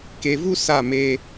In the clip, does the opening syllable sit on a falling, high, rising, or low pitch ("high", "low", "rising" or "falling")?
low